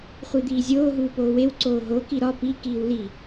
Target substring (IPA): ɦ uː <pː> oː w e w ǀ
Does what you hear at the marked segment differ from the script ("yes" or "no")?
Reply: yes